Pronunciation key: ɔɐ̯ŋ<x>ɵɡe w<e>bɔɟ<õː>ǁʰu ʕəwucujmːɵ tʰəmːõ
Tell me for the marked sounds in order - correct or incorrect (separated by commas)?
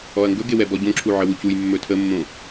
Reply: incorrect, incorrect, incorrect